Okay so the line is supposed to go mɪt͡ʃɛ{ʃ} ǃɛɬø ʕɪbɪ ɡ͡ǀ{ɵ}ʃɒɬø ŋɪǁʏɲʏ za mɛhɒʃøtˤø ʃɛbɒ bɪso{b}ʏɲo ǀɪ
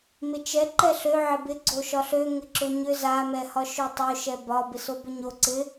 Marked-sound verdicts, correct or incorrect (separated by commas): incorrect, incorrect, correct